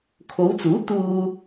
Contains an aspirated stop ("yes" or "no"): yes